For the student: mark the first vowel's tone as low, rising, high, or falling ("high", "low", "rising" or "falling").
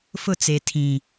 falling